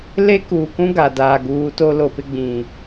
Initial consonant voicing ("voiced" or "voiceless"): voiced